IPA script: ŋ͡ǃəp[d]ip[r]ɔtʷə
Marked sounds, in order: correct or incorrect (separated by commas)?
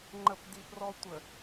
correct, correct